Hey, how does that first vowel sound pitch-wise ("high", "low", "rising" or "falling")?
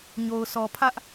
low